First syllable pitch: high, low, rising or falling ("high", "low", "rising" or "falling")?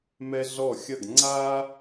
high